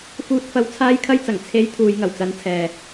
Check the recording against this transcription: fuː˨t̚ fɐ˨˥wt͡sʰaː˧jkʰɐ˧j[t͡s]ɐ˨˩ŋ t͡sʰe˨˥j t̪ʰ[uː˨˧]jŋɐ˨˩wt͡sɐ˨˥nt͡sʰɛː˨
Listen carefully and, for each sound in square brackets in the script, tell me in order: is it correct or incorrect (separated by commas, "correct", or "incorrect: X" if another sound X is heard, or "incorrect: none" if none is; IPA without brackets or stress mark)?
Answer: correct, correct